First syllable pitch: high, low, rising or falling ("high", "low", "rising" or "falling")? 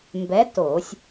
rising